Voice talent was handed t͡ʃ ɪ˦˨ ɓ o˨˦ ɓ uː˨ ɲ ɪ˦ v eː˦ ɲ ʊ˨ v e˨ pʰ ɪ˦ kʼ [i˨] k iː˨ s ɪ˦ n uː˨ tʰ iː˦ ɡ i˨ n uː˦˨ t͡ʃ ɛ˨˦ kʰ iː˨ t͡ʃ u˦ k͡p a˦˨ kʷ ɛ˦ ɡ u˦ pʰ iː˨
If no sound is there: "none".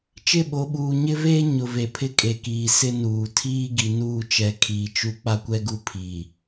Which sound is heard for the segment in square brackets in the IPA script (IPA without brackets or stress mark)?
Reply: e˨